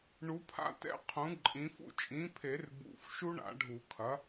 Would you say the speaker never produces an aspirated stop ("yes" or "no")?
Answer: no